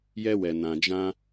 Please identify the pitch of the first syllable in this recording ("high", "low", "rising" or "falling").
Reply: high